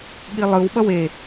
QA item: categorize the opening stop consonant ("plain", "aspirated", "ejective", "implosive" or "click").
implosive